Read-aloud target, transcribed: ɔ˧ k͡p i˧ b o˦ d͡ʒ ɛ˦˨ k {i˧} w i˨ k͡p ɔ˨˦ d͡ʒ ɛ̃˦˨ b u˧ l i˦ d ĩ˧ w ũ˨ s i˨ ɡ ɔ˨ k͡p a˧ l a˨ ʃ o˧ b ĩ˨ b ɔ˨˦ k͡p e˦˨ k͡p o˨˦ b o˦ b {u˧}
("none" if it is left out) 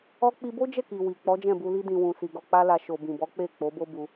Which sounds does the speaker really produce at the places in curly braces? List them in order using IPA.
i˨, u˧

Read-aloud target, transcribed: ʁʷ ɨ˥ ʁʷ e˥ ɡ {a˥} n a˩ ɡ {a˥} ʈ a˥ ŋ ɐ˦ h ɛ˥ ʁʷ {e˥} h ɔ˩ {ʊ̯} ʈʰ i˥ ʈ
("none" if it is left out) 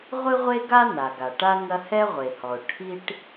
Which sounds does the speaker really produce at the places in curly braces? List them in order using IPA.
a˥, a˩, e˩, ʊ̯

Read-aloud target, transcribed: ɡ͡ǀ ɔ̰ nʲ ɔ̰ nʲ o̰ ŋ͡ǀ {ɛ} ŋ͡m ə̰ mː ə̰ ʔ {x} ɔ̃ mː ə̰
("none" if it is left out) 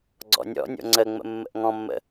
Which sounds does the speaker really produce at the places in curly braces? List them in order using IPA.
ə, ŋ

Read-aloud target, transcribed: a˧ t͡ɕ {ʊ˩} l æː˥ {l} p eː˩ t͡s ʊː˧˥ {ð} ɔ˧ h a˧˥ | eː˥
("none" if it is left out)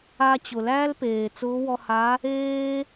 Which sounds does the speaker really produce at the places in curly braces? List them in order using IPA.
ʊ˩, l, w

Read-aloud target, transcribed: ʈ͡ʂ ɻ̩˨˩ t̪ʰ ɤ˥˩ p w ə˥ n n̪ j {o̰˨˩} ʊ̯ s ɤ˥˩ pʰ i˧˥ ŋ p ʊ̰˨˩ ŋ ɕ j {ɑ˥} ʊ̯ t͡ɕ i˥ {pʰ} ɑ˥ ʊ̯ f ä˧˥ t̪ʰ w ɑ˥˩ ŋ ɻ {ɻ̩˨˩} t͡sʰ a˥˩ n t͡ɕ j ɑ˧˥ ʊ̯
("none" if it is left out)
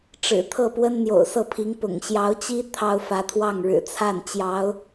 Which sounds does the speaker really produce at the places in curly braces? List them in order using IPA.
o̰˨˩, ɑ˧˥, t̪ʰ, ɻ̩˨˩

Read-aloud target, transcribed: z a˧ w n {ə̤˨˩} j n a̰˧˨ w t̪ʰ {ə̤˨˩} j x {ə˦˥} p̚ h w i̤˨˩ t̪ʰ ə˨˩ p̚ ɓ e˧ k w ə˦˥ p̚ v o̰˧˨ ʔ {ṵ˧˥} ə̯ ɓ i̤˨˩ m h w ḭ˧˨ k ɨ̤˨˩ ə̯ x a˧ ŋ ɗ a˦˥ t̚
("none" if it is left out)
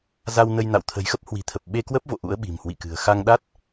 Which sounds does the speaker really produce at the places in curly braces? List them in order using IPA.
ə˧, ə̤˨˩, ə˦˥, ṵ˧˥

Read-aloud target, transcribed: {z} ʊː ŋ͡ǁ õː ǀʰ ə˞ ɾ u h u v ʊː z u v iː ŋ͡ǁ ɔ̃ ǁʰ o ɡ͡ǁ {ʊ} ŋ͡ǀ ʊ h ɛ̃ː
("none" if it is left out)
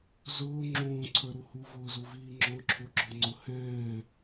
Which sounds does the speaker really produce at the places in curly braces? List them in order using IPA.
z, ɔ

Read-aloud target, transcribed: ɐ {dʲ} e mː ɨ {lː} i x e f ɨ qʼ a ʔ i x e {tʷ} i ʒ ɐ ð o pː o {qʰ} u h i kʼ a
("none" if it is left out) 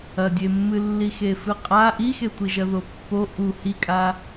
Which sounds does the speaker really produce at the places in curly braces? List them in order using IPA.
dʲ, lː, tʷ, ʔ

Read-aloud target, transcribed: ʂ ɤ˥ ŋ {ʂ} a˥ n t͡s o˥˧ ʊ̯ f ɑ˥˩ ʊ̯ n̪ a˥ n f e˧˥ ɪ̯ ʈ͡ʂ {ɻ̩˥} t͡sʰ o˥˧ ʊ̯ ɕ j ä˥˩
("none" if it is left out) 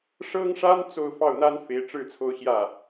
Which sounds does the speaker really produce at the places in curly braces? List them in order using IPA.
ʂ, ɻ̩˥˧

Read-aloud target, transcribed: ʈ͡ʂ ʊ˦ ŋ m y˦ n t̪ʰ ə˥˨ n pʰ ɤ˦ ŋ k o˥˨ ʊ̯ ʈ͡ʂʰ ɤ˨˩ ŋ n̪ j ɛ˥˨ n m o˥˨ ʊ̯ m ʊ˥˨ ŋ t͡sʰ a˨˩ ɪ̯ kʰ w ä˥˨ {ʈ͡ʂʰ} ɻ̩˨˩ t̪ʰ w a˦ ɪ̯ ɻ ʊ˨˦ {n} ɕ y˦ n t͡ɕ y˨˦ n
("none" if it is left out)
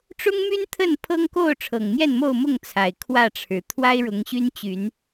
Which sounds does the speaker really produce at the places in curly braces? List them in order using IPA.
ʈ͡ʂʰ, ŋ

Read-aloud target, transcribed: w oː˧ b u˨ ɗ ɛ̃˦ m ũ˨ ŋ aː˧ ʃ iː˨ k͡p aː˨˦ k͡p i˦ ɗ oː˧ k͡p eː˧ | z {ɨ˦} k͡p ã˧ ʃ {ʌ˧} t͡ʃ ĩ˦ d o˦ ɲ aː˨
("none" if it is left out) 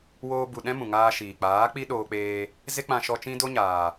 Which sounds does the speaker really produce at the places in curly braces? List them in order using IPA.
e˦, ɔ˧

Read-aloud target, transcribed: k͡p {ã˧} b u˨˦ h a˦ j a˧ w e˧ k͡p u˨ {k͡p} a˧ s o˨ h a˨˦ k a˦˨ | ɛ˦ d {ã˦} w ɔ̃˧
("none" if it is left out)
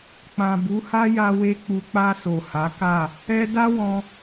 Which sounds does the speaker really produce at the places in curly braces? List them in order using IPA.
ã˨, k͡p, a˦

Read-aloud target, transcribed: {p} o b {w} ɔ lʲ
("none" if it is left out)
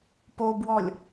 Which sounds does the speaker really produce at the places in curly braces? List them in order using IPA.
p, w

